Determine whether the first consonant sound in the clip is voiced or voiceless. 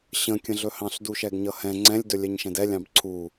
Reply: voiceless